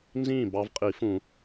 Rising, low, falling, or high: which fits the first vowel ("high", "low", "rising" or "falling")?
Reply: falling